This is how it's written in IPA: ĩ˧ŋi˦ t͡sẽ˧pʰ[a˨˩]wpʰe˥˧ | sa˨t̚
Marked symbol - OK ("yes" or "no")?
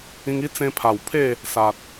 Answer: yes